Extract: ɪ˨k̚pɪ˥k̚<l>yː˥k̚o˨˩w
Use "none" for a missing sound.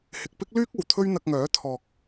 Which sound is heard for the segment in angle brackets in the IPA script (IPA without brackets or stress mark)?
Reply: l